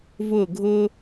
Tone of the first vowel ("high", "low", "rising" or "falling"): falling